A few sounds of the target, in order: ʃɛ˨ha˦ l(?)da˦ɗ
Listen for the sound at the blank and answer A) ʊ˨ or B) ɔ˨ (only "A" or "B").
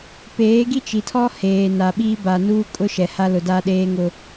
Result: A